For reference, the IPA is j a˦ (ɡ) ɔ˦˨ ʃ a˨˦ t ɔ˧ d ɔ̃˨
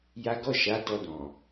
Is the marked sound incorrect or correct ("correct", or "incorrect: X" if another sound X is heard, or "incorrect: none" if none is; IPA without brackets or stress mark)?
correct